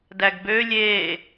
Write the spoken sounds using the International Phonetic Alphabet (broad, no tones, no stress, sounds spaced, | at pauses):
d æ ɡ b ø lʲ e